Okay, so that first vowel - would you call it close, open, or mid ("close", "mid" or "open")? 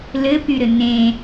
mid